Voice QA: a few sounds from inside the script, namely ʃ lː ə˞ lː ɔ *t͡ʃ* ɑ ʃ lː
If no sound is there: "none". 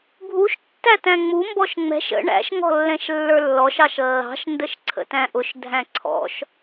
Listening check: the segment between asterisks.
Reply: ʃ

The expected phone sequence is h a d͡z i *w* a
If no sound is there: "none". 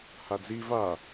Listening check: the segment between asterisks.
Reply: v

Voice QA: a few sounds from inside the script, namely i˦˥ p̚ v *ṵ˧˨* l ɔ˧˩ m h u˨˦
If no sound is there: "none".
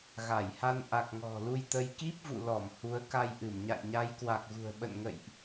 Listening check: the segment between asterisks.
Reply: ṵ˧˨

